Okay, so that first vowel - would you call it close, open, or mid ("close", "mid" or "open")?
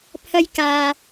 open